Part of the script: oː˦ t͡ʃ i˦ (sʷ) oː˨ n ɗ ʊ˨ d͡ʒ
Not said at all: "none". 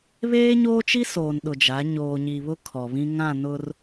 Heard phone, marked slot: s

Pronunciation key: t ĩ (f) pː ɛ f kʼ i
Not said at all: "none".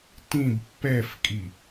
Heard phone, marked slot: b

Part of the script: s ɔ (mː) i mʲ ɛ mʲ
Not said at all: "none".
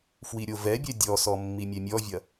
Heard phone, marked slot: mː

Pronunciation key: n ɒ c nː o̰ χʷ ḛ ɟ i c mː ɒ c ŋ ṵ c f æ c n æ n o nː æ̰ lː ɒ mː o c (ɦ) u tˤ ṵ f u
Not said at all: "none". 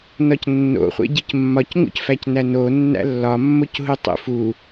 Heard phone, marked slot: ɦ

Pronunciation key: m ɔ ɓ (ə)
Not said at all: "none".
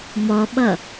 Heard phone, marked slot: ʌ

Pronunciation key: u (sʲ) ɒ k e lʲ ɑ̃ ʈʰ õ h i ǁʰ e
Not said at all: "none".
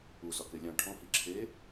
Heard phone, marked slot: s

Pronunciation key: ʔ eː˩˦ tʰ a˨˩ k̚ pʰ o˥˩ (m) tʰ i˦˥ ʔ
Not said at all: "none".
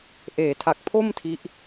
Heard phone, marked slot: m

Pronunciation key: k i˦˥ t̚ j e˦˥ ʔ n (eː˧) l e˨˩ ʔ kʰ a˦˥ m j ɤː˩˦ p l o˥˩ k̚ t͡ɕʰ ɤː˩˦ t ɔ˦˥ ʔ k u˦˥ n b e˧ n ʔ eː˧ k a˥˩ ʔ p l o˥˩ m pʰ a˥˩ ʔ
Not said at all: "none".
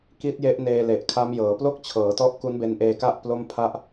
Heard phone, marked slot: eː˧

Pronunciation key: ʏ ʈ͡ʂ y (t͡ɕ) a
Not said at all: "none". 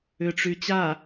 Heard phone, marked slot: t͡ɕ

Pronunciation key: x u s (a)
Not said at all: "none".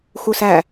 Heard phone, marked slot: æ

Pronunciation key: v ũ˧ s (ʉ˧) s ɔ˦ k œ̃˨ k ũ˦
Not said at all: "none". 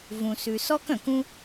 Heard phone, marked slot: ʉ˧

